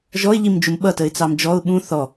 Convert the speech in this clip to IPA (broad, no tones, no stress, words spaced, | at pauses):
ʒɔɪ̯ʎimd͡ʒum ɓʌtəɪ̯t͡sɑm d͡ʒɔʊ̯ ɓũ θɔ